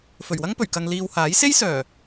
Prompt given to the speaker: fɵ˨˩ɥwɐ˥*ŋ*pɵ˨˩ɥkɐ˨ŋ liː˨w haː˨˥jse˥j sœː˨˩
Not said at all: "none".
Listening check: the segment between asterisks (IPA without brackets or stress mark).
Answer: ŋ